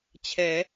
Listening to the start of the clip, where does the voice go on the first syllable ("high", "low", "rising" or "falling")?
rising